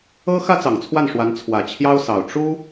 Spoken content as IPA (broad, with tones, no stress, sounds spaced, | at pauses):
ɤ˥ x ä˥ t͡s ɑ˨˩ ŋ t͡sʰ w a˥˩ n ʂ w a˧˥ n t͡sʰ w ä˨˩ t͡ɕʰ j ɑ˥ ʊ̯ s ɑ˨˩ ʊ̯ ʈ͡ʂ u˥